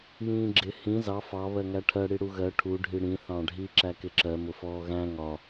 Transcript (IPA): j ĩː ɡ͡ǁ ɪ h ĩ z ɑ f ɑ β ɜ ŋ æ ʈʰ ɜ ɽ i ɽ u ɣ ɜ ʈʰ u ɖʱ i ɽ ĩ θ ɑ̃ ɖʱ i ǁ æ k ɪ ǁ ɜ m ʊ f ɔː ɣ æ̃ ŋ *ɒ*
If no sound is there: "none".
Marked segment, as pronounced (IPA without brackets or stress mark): ɒ